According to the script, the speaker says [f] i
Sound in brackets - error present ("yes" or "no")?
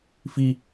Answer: no